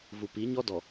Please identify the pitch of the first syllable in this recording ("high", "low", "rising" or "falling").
low